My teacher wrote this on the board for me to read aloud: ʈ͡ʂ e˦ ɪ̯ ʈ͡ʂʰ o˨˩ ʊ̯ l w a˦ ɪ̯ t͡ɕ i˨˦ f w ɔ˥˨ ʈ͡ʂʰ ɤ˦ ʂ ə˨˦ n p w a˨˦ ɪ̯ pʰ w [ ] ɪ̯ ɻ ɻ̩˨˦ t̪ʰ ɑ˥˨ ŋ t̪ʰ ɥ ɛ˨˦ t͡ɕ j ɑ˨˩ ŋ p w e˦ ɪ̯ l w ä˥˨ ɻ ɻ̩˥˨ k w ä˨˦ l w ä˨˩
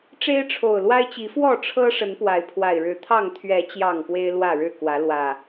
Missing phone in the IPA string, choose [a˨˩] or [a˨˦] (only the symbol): a˨˩